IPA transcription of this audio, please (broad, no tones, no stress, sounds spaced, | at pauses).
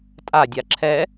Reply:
tʼ a dʲ a ǁʰ ɛ